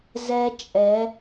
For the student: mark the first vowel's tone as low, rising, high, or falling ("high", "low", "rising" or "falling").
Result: high